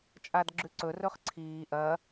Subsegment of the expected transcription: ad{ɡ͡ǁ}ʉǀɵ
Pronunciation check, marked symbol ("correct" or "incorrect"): correct